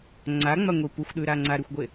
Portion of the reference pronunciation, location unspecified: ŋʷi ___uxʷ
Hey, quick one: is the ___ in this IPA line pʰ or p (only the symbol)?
p